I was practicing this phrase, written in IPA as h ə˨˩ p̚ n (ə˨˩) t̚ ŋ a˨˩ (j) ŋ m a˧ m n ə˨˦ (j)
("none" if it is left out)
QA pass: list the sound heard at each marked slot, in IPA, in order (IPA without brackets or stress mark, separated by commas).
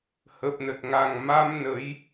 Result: ə˨˩, none, j